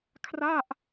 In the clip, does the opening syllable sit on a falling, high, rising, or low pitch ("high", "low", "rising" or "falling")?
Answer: falling